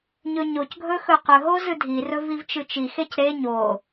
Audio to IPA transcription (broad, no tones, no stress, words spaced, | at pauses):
ɲɵɲocɡʱɵ xɵqɵɦo zɨdʱirɵ vivt͡ʃɨt͡ʃixec ɾe ɲo